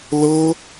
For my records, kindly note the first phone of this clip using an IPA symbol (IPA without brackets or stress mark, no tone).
l